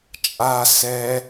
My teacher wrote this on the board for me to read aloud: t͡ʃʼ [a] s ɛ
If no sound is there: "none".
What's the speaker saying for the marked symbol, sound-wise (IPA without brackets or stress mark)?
a